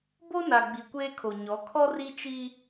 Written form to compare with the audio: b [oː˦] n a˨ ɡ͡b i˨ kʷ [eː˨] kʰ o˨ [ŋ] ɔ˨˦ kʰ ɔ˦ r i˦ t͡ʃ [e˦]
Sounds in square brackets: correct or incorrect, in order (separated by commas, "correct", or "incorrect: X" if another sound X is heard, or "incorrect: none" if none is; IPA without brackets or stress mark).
incorrect: o˦, incorrect: eː˦, incorrect: ɲ, incorrect: i˦